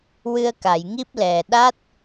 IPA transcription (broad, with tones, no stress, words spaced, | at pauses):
wɨ˧ə̯ka˨˩˨jŋi˦˥p̚lɛ˨˩ ɗa˦˥t̚